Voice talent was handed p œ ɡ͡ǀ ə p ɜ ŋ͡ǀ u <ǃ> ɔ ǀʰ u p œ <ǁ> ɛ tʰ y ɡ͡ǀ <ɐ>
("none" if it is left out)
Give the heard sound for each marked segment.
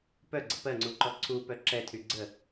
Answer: ǃ, ǁ, ə

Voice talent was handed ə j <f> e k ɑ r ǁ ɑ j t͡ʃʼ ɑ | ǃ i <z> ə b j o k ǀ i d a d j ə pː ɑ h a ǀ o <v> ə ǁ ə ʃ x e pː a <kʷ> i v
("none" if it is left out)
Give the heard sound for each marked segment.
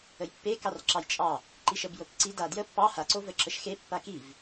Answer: pː, ʃ, v, k

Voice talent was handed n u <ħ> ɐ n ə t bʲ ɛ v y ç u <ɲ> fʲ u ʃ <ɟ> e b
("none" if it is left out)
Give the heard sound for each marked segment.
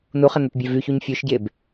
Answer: χ, ɲ, ɟ

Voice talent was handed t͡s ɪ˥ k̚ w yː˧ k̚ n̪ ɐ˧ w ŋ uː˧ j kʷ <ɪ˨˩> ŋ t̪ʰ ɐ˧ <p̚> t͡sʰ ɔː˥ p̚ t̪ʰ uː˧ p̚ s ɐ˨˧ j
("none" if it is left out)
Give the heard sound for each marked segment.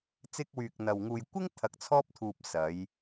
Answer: ɪ˥, k̚

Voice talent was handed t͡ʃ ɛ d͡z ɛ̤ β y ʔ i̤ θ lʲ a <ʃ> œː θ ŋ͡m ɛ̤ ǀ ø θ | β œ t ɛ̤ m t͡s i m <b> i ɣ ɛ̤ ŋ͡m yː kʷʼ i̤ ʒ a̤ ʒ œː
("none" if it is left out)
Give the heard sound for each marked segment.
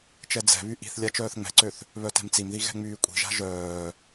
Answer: t͡ʃ, ð

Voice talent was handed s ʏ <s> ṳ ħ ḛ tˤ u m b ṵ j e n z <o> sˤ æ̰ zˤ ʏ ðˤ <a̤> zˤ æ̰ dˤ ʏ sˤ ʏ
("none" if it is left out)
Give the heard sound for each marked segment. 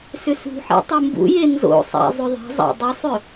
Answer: s, o̰, æ̤

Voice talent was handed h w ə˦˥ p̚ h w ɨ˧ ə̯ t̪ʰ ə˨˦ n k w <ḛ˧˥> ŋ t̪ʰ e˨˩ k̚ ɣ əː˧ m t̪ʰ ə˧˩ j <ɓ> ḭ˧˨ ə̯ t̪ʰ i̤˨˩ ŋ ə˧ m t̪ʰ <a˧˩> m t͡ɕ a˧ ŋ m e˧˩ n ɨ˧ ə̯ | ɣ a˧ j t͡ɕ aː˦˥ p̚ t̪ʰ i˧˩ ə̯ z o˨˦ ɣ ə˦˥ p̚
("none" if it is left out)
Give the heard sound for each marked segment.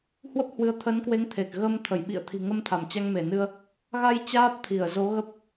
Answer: e˨˦, ɓ, a˧˩

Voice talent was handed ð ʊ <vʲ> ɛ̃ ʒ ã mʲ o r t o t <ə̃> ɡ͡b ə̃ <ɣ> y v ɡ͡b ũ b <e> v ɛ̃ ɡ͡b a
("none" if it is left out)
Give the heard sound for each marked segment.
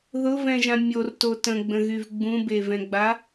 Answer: v, ə̃, ɣ, e

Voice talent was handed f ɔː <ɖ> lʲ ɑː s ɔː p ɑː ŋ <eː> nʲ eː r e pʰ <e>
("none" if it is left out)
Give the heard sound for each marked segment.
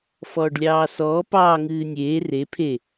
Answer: ɖ, ɨː, e

